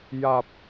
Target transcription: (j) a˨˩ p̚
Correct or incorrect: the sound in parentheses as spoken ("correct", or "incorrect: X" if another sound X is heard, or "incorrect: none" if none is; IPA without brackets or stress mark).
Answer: correct